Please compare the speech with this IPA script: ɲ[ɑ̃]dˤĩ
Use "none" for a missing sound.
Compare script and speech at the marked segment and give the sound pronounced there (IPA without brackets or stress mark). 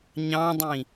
ɑ̃